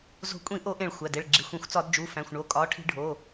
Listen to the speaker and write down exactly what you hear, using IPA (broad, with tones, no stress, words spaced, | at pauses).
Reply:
zo̤˧˩˧kʷʼĩ˧˩˧ʔo˧˩˧ ʔẽ˧˩˧ɭ xʷæ˩˧˩ de˩˧˩ɭ ɡ͡ǁi˩˧˩xʷẽ˧˩˧xʷ t͡sɒ˧˩˧dd͡ʒu˩˧˩fæ̃˩˧˩xʷɳo˩˧˩ kʼɒ˩˧˩ʈʰi̤˧˩˧ɖʱo˩˧˩